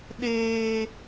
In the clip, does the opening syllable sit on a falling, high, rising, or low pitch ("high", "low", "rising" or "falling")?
high